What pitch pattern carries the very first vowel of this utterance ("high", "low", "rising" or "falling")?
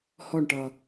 falling